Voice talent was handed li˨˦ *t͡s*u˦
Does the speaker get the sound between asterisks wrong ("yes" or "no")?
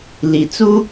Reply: no